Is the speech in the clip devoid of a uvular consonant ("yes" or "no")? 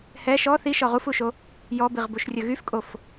no